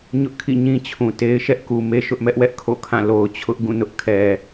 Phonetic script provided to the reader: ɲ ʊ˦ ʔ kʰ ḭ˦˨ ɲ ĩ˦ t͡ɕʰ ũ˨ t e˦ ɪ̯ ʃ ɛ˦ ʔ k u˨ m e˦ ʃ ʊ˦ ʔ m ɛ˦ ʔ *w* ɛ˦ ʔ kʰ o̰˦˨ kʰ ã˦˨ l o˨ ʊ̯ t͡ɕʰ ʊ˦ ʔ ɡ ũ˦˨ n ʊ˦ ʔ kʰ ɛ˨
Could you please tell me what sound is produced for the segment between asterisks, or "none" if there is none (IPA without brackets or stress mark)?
w